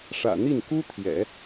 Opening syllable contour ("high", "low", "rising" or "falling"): low